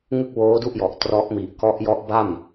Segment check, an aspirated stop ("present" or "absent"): absent